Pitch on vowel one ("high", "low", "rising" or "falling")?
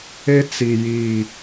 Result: high